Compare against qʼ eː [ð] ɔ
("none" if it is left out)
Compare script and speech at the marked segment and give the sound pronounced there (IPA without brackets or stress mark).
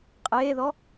ð